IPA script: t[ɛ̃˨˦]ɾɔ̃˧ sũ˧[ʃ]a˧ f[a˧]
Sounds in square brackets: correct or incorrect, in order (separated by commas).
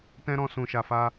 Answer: incorrect, correct, incorrect